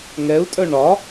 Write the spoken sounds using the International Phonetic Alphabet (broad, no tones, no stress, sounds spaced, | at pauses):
ŋ ɛ u̯ tʼ œ ɳ ɒ